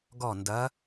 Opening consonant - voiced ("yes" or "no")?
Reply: yes